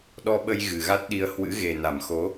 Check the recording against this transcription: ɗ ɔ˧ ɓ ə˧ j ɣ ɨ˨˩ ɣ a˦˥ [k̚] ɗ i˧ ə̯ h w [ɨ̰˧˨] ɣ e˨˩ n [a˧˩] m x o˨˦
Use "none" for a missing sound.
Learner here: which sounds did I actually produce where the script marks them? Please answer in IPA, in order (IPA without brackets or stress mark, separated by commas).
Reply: t̚, ɨ̰˧˥, a˧˩